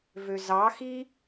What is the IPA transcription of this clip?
v ø z ɑ x i

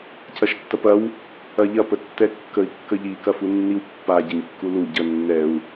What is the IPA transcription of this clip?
c ɐ ʃ tː ɐ p ɐ w | ɐ ʎ ɐ p ə tː ɛ kː ə i̯ kː ə ʎ i k ɐ f u nː i w pː a ɟ ə ɲ kː u l u ɟ ə nː ɛ u̯

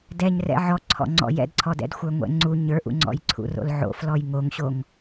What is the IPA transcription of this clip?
d ɛ ɲ r ɛ̰ ʕ ɔ ǀʰ ɔ̰ ŋ͡ǀ ɔ̰ j ɛ̰ d ǀʰ ɔ d ɛ̰ d xʷ ə˞ ŋʷ ɛ̰ ŋ͡ǀ u ɲ ə˞ ʔ ṵ ŋ͡ǀ ɔ̰ j ǀʰ ṵ r o̰ l ʕ o̰ f l ɔ j ŋ o ŋ ɕ o ŋ

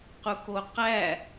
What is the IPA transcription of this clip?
q u k o q æ

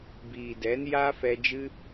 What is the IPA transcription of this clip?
b iː˨ d ɛ˨˦ n j aː˦ f ɛ˧ d͡ʒ ɨ˦

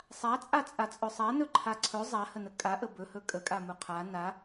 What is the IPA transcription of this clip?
sˤ a t͡sʼ a t͡sʼ a t͡sʼ ɵ sˤ a n ɵ ǃʰ a ǀʰ ɵ zˤ a h ə n ə kʼ a ʔ ə b ɵ h ɵ kʼ ə kʼ a m u qʰ a n a

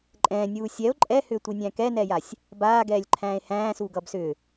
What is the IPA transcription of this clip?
ǃʼ ɛ̃ː nʲ uː sʲ ɛ o̯ ǃʼ ɛ h ʏː tʷ i nʲ æ̃ː k ɛ n ɛː j a sʲ | b aː ɡ ɛː lʲ ǃʰ æ̃ː e̯ h æ̃ː s u ɡ ʌ b s ʏ

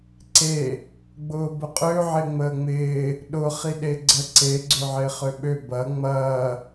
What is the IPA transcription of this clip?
ǀ e | ɡ͡b ʊː b ʊ qʼ ø ʕ ɪ ŋ͡m əː ŋ͡m ɪː | ɗ ʊ χ i ɗ e ɡ͡ǀ ə ǀ e ɡ͡ǀ ø ʕ ɪː χ ø ɓ ø b ɐ ŋ͡m ɐː

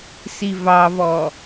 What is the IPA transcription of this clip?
s i v ɑ v ɔ

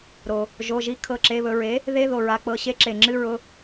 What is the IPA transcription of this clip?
ɾ o˩ | ʒ o˩˧˩ ʒ i˧˥ kʰ ɤ˩˧˩ ǁ e˩˧˩ β ɵ˧˩ ɹ e˩˥ | ð e˧˥˧ ð o˩ ɹ a˩˧˩ k͡p ɤ˧˩ ɕ e˧˥˧ ǁ e˩ ŋ͡ǁ ɨ˧˥˧ ɹ ʊ˩˧˩

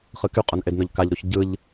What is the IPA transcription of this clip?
χ ɯ k y qʼ ʊ n ʔ e d n ʊ ʎ k a ʎ ɾ u ç ɟ ɯ ʎ

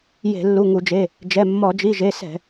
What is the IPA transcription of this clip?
j e̤˧˩˧ lː u˩˧˩ ŋ u˧˩˧ d͡ʒ e˩˧˩ | d͡ʒ ɛ˩˧˩ mː ɔ˧˩˧ d͡ʒ i˩˧˩ ʒ e˩˧˩ s ɛ̤˧˩˧

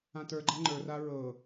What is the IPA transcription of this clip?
ã t ə˞ ɡ͡ǃ a ŋ͡ǃ ə˞ r a ɹ ɤ

